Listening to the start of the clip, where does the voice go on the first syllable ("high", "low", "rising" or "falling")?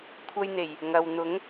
high